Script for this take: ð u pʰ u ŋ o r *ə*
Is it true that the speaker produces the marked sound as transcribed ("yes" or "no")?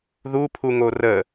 yes